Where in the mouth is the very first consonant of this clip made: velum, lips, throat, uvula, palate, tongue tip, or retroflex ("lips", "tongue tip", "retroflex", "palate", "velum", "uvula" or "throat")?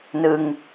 tongue tip